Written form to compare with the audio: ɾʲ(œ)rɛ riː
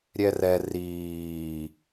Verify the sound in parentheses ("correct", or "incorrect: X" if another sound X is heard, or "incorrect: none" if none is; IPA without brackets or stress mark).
incorrect: ɛ